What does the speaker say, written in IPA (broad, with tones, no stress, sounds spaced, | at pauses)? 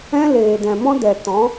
ɛ̃˦ l eː˨ d ɛ̃˨ m ɔ̃˦ d ɛ˨ t ɔ̃˨˦